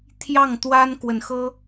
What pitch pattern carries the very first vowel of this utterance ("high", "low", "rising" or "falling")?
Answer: falling